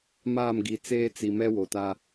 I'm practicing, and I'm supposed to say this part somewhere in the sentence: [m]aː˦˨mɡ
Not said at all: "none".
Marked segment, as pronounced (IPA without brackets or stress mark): m